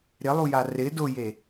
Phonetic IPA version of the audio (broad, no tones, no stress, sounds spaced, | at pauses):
ɾ ɪ lˠ u j a r ɪ d ʊ j e